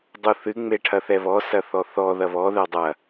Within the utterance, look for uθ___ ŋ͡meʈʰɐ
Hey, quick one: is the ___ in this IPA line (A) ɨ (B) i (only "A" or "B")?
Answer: A